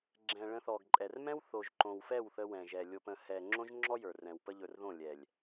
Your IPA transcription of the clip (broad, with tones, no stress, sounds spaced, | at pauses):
ɡ͡ǁ ɛ̃˨ ɭ ə̃˧ θ ɔ˨ ɡ ǃʼ ɛ˨ r m ɛ̃˦ w θ o˨ ʒ ǃ õ˨ w f ɛ˦˨ w θ ə˧ w ɛ̃˨ ʒ ɛ˨ lʲ o˨ p ə̃˨ h ɛ˨ ŋ͡ǁ õ˦ ʒ ŋ͡ǁ ɔ˦ j ə˞˨ r ɛ̃˨ w p ə˦ ʎ ɵ˧ r ð õ˦˨ lʲ ɛ˨ lʲ